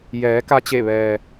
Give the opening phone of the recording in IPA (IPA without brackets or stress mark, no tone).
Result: j